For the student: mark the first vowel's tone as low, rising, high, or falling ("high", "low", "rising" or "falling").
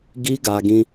high